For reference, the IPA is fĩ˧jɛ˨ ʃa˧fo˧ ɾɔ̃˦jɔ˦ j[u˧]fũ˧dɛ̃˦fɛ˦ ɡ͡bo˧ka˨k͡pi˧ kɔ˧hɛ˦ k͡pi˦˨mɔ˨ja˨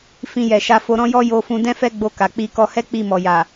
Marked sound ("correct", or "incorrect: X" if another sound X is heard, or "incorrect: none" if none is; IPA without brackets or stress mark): incorrect: o˧